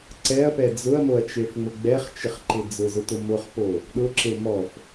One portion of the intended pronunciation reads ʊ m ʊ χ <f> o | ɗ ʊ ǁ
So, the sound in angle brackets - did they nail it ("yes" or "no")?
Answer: no